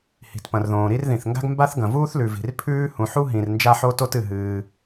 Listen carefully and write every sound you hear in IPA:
h i̤˩ t p ɐ̃˩ r ð õː˩ ɾ i˥ r ð ĩ˩ θ ŋ ɡ a̤˥ ɡ m b a˥ θ ɡ ɐ̃˩ v uː˥ θ l ʉ˩ v i̤˩ r pʰ ʉː˥ h ũ˩ ħ u˥ ɦ ĩ˩ r n d͡ʒ a˥ ħ o˥ t o˥ t ɨ˩ ɦ ɨː˩

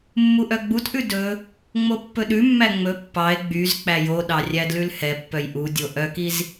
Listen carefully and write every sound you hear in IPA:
mː u ʔ œ ɡ͡b u t ʔ ʉ d ɵ | ŋ͡m o pː ɵ ɗ ʉ mː æ ŋ͡m ɵ pː ɑ e̯ ɡ͡b y z k͡p æ j o ɗ ɑ rʲ æ d l ʉ l h ɛ pː œ j ʔ u dʲ o ʔ œ k i z

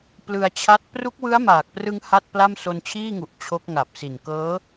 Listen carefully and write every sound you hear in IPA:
p l ɯ˧ a̯ t͡ɕʰ a˦˥ t̚ p r u˦˥ k̚ w ɯ˦˥ a̯ m aː˨˩ k̚ p r ɯ˧ ŋ h a˥˩ t̚ p l a˥˩ m s o˧ n t͡ɕʰ iː˥˩ ŋ u˨˩ ʔ t͡ɕʰ o˦˥ k̚ ŋ a˨˩ p̚ s i˨˩ n k ɤː˦˥

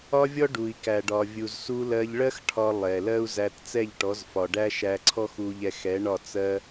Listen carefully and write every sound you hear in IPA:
ɒ˦ vʲ ɔ˦ ɖ u˨ i̯ k æ˨ ɖ ɒ˨ vʲ u˨ z s u˧ l ɜ˧ ʎ ɭ ɜ˦ x ʈʰ ɒ˧ lˠ ɛ˨ l ɜ˦ u̯ z æ˧ t t͡s ɛ˦˨ ʎ ʈ ɔ˨˦ z f ɒ˨ ɖ æ˦ ʃ æ˧ ǀʰ ɔ˦ x u˧ ʎ ɛ˧ x ɛ˨˦ ɳ ɒ˦˨ t͡s ɜ˧

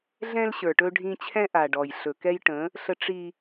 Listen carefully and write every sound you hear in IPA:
ɮ ɛ̃˦ l ɕ ə˞˨ ʈ ɵ˦ ɖʱ ĩ˦ t͡ɕʰ ɛ̃˦ ʔ a˨ ɖ ɔ˨ j ɬ ɵ˨ k ɛ˦ j ʈ ə̃˨˦ | ɬ ə˦ ʈ͡ʂ i˦

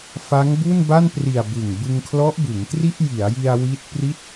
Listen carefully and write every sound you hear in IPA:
f a˦˥ ŋ b u˥˩ n b a˥˩ n p r i˨˩ a̯ b ɯ˨˩ ŋ b ɯ˧ ŋ kʰ l ɔ˦˥ ʔ b ɯ˩˦ ŋ t r i˥˩ ʔ j i˩˦ a̯ j i˧ a̯ w i˦˥ t̚ p r i˥˩ t̚

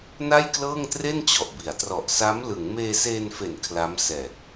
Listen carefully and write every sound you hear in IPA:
n a˥˩ j k l ɤː˥˩ ŋ t r e˥˩ n t͡ɕ ɔ˨˩ ʔ b i˩˦ a̯ t r ɔ˨˩ ʔ s a˦˥ m l ɯ˩˦ ŋ m eː˧ s eː˧ n f e˨˩ n kʰ l a˦˥ m s ɛː˨˩ t̚

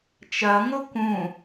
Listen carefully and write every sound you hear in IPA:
t͡ʃ ɐ ŋ o k ũ

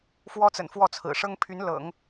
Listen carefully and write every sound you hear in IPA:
f w ɔ˥ t͡s ə̰˨˩ n f w ɔ˥˩ t͡sʰ ɹ̩˨˩ ʂ ɤ˥ ŋ pʰ y˧˥ n l ɤ̰˨˩˦ ŋ

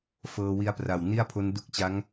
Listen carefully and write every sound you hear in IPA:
f ɤː˧ w i˦˥ a̯ p r a˨˩ w n i˥˩ a̯ pʰ o˦˥ n d u˦˥ k̚ t͡ɕ a˦˥ ŋ

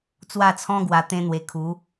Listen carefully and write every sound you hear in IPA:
t͡s w a˥˧ t͡sʰ ɔ̃˦ ɡ w a˧ t̪ ẽ˦ n̪ w e˧ kʰ u˨˦

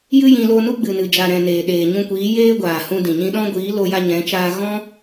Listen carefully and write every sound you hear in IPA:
j ɨ˦ j ĩ˧ l o˧ n u˦ ɡ͡b ɨ˨ n ɨ˨ d͡ʒ a˨ ɾ ɛ̃˨ n eː˨ ɗ eː˨ ɲ ũ˧ kʷ iː˨˦ j eː˦ ɡʷ aː˨ h ũ˧ d ĩ˨ ɲ ĩ˧ ɗ ɔ̃˦ ɡʷ iː˨˦ l o˧ j a˧ ɲ ɛ̃˨˦ t͡ʃ aː˧ ɣ ɔ̃˦

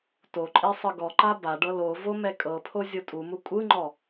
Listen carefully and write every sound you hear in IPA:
t o ǃʼ e sˤ ɯ ɡ ɔ ǃ a b a ɖ ɤ l o v o m ɛ kʼ ɤ pʰ o zʲ o tʼ u m u kʷʼ ɯ ŋ͡ǃ ɔ

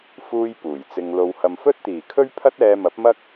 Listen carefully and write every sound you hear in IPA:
f uː˧ j p uː˨˩ j t͡s ɪ˧ ŋ l o˧ w h ɐ˨ m f ɵ˥ t̚ t̪ iː˨˩ kʰ ɵ˥ ɥ pʰ ɐ˥ t̚ ɛː˧ m ɐ˨˥ p̚ m ɐ˥ k̚

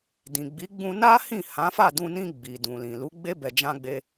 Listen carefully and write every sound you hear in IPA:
d ĩ˨ ɡ͡b i˨˦ ɡ͡b ũ˧ n a˦ h ĩ˦˨ h ã˨˦ f a˦˨ d ũ˧ n ĩ˧ ɡ͡b i˨ d ũ˨ l ĩ˨ l u˨˦ ɡ͡b e˦ b ɛ˧ d͡ʒ ã˦ ɡ͡b e˦

